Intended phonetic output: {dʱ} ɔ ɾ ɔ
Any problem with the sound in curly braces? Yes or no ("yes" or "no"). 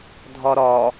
no